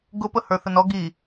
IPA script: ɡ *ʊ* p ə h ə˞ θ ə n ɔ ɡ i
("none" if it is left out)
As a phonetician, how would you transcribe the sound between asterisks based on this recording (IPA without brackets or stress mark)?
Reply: ʊ